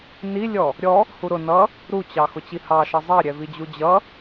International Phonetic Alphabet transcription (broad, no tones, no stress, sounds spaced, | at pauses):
n i lʲ ɔ | ɾʲ ɔ | h u ɾ ʊ n ʌ | ɾ u t͡ɕ ɑ x ʊ t͡ɕ i h ɑ ʃ ʌ zˤ ɑ ɾʲ ɛ v i d͡ʑ u d͡ʑ ʌ